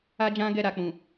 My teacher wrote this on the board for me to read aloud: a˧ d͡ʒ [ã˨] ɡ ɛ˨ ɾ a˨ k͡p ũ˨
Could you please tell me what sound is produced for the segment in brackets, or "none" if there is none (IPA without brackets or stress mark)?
ã˧